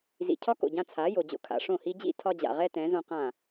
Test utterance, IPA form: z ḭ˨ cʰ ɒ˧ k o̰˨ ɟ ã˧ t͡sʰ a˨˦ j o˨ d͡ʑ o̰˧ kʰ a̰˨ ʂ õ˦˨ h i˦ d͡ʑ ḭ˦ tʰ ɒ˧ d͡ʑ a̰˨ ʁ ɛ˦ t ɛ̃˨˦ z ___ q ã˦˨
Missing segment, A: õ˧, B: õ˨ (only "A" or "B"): A